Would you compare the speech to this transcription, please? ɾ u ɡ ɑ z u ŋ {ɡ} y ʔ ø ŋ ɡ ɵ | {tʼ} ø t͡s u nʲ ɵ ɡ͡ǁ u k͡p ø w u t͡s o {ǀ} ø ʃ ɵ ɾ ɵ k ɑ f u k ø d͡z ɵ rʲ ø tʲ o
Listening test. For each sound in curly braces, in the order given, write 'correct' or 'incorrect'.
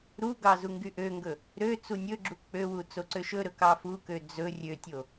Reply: correct, incorrect, correct

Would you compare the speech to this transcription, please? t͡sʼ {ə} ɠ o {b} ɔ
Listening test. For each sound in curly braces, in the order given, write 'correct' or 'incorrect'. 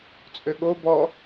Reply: incorrect, correct

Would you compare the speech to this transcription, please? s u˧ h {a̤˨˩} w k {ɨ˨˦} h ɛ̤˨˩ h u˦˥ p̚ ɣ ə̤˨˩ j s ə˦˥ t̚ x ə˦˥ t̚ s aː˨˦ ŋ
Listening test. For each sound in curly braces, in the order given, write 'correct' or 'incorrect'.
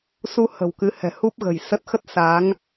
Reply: incorrect, correct

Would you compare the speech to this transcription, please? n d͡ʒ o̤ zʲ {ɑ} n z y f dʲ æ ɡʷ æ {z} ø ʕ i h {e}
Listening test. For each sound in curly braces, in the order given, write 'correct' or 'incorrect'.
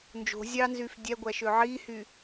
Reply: correct, incorrect, incorrect

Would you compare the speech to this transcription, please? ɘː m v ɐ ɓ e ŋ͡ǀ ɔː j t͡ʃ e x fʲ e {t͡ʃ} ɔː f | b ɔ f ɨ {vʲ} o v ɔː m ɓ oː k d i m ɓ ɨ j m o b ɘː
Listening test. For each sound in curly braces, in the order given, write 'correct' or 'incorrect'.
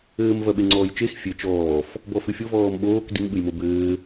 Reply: correct, incorrect

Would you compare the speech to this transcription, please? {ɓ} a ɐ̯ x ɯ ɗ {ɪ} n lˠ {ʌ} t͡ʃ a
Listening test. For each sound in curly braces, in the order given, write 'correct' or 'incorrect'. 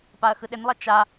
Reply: incorrect, correct, correct

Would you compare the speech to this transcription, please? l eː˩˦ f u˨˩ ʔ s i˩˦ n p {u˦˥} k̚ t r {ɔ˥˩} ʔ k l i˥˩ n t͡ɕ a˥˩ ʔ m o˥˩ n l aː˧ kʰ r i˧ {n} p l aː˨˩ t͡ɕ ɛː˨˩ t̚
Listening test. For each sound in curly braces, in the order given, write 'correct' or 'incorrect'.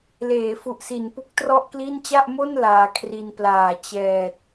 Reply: correct, correct, correct

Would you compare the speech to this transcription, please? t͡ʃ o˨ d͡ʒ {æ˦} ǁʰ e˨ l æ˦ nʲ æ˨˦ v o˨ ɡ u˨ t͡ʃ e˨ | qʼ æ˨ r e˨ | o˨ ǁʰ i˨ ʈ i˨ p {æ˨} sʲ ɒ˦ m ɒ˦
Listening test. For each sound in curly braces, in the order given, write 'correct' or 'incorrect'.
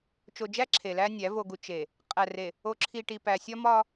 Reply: correct, correct

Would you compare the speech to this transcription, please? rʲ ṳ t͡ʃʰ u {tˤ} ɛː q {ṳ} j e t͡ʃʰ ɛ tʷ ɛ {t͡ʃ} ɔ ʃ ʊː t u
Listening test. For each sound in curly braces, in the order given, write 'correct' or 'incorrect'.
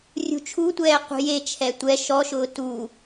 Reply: incorrect, correct, incorrect

